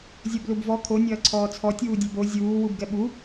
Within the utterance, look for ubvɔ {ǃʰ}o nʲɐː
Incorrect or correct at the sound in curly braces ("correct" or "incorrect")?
incorrect